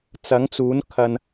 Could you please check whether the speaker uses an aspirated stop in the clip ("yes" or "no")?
yes